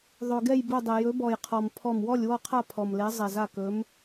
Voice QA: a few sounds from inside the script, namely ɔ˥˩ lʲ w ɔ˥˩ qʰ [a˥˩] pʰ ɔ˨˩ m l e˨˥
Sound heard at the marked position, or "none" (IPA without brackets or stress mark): a˥˩